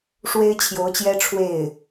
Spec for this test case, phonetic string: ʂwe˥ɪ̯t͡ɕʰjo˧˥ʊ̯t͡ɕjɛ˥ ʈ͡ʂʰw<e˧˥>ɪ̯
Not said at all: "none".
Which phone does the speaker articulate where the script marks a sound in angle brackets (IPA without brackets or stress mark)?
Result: e˥˩